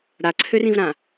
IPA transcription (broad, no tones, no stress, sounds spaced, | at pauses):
ɽ a ǀʰ ø r ĩ v ɾ ã